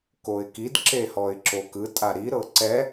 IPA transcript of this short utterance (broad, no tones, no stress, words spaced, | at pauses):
koɪ̯kid ǁehɔɪ̯ǁokɯ tʼaɾi ɾɤǀɛ